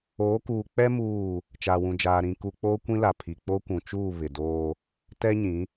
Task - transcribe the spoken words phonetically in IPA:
oː˨˦ k uː˨ k͡p ɛ˦ m uː˦˨ | t͡ʃ aː˨ w ũ˨ d͡ʒ aː˨ ɾ ĩ˨ k u˨ k͡p oː˦ kʷ ĩ˦ l a˨ pʰ i˨ k͡p o˦ kʷ ũ˨ t͡ʃ uː˦˨ β ɪ˨ d oː˦ | t ɛ˦ ɲ ĩ˨˦

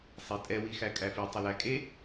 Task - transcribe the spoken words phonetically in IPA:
sˤ e tʼ ɛ w i x æ kʼ æ f i tˤ ɪ l æ kʼ e

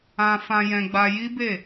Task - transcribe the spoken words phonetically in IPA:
ã˧ f ã˧ j ɛ̃˧ ɡ͡b a˧ j i˦ b e˦˨

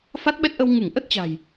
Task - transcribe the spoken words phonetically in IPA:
f a˦˥ t̚ ɓ ɛ˦˥ t̚ ʔ ə˧ w ŋ ɨ˧˩ ŋ ʔ ə˦˥ t̚ t͡ɕ a̤˨˩ j

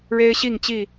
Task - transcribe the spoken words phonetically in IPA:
ɻ e˦ ɪ̯ ɕ i˥˨ ŋ t͡ɕ i˥˨

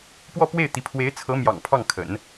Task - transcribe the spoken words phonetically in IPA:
p w ɔ˥˧ p w e˥˩ ɪ̯ t̪ i˧˥ pʰ w e˧˥ ɪ̯ t͡sʰ ɤ˧˥ m j ɑ̰˨˩ ŋ pʰ ɑ˥˩ ŋ kʰ ə̰˨˩˦ n

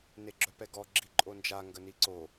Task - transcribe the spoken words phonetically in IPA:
n e ɡ͡ǁ œ p ɛ ɡ ɔ ɡ͡ǁ i ǃʼ o n d͡ʒ a ŋ ɡ ə n i ǀ o

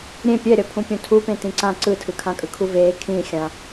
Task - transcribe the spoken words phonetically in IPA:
ɾʲ ẽ pʲ ɛ ɾʲ ʌ pʰ ũ pʲ ũ tʰ u p ẽ t ĩ ǀ ã ǀ ɯ tʰ ɯ kʰ ã kʼ ɯ kʰ u v eː kʰ ĩ xʲ ã

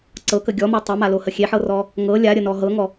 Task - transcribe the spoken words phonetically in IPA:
ǀ ɤ k ə ɡʲ ɔ m ɔ tˤ e m a l o h ə xʲ e ħ ɤ r ɔ | ŋ ɤ lʲ a ɾʲ ə n ɔ ɦ ɤ ŋ ɔ

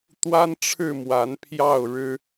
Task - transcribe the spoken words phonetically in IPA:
t̪ w a˦ n ʈ͡ʂʰ ɻ̩˥˨ m w a˨˦ n pʰ j ɑ˥˨ ʊ̯ ɻ ɻ̩˦

